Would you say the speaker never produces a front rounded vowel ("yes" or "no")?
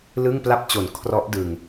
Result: yes